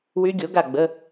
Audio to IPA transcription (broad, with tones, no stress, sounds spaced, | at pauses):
w y˦˥ ɡʲ o˩˥ ɡ a˦˨ ɡ͡b ə˧˥˧